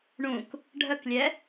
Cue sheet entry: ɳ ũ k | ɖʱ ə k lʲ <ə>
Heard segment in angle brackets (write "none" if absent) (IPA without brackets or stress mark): ɛ